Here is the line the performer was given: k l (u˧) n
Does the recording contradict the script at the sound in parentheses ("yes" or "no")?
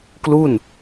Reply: yes